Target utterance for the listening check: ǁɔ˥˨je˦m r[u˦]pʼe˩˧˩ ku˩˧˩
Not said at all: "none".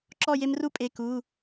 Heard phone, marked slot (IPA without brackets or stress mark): u˦